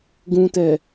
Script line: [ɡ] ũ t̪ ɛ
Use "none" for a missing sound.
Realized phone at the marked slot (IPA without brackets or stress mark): ɡ